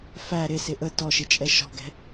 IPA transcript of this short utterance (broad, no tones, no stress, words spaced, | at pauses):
fæ ɾɪsɪ ʔə tɔʃɪt͡ʃʼɛ ʃɔ̤ɡɛ̤